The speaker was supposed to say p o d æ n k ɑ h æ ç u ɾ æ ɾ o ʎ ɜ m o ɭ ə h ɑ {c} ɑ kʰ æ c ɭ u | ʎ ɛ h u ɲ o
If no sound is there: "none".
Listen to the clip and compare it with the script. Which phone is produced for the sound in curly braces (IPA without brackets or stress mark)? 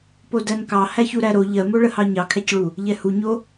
ɲ